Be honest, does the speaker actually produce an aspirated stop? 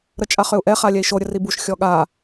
no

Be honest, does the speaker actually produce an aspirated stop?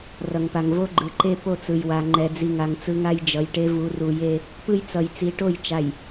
no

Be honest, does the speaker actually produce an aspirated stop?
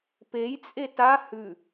no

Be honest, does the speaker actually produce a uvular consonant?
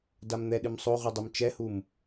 yes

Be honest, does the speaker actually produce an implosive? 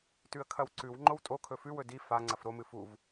no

